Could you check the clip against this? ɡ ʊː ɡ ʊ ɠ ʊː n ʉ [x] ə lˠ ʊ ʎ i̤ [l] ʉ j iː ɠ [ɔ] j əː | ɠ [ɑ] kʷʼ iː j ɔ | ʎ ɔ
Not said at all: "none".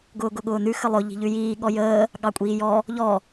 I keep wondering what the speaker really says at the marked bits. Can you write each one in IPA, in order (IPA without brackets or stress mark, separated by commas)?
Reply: x, ʎ, ɔ, ɑ